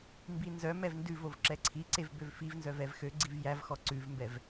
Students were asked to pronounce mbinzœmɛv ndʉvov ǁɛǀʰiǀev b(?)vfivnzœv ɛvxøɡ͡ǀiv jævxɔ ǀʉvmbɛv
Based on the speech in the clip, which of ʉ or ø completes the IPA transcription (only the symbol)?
ø